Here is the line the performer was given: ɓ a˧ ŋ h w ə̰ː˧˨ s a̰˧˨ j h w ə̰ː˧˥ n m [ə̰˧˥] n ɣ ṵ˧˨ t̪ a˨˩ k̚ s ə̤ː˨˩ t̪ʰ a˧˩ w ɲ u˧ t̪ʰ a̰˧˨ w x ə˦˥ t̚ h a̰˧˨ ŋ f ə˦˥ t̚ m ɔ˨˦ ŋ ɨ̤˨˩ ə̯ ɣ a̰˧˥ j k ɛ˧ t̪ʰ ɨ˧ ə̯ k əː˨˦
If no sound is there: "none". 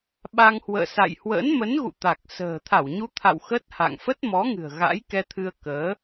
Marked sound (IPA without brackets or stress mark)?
ə˨˦